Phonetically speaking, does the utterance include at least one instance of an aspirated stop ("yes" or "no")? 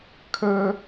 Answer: yes